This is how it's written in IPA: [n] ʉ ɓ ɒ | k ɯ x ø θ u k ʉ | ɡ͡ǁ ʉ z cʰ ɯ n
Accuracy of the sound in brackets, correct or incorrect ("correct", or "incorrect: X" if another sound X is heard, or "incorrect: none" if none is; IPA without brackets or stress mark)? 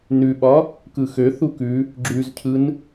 correct